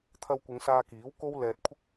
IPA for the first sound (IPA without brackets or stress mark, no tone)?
t̪ʰ